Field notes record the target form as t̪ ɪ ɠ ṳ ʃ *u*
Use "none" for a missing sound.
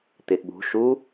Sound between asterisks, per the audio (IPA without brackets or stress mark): u